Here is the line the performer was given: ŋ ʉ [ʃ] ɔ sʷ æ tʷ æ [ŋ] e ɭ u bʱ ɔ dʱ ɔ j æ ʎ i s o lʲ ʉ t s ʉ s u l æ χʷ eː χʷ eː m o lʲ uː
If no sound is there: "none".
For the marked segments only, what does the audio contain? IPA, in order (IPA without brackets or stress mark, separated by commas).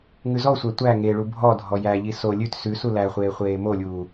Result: z, ŋ